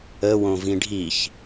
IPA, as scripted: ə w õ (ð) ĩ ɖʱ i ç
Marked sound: incorrect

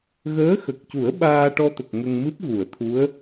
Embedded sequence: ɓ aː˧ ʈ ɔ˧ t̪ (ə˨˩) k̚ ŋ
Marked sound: correct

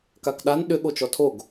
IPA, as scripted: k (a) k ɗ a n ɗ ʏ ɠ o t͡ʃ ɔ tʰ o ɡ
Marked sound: correct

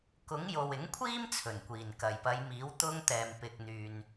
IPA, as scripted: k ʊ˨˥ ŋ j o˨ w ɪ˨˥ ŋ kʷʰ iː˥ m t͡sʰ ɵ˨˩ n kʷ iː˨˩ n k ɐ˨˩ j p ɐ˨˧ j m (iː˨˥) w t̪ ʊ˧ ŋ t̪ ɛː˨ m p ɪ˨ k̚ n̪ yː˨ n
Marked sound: correct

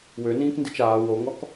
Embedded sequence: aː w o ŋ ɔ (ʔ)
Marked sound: incorrect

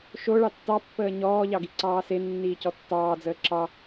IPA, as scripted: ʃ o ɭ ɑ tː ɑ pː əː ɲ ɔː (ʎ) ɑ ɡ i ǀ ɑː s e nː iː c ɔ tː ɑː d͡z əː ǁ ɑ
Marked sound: correct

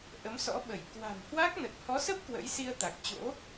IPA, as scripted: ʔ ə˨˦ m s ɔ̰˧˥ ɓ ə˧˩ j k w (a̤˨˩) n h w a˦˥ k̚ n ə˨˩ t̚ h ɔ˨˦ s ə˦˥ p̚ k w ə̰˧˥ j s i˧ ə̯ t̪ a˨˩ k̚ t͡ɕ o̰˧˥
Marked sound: correct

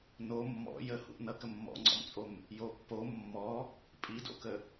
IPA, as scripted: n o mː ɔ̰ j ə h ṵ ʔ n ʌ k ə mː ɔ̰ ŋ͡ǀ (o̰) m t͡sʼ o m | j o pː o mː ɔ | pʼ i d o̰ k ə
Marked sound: incorrect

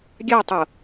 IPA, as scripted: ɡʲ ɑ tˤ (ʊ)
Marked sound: correct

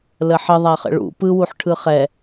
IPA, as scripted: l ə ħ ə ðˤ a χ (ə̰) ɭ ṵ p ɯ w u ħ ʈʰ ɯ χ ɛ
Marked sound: correct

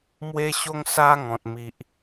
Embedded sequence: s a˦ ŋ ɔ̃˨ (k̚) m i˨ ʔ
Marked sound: incorrect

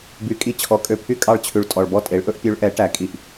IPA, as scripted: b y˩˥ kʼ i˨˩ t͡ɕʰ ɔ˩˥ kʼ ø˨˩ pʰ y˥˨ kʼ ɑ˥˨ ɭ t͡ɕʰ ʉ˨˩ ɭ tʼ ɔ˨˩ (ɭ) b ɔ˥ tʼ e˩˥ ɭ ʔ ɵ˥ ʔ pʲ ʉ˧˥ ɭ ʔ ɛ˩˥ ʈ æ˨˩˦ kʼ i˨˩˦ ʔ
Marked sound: correct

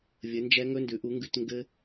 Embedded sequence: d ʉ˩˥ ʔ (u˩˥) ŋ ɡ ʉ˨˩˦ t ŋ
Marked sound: correct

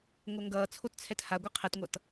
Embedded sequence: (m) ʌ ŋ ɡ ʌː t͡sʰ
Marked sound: incorrect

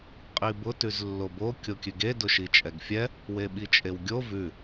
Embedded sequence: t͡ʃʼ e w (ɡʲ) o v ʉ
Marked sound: correct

